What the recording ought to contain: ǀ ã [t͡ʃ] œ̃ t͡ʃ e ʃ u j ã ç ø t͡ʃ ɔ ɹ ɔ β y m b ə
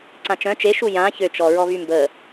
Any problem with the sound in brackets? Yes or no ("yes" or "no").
no